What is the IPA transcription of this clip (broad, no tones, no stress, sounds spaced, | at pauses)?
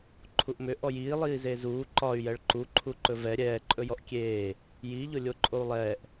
ǃʰ u ʔ m ʏ ʔ ɔ j iː lˠ iː z e z uː ǃ ɒ y̯ j ɛ ɭ ǃ u ǃʰ u ǃ ɵ v ɛ ɾʲ ɛː ǃʼ ɵ j ɔ ʔ kʲ eː | j i ʎ ʊ lʲ o ǃʼ o u̯ lˠ ɛː ʔ